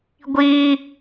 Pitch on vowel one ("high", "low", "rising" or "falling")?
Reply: high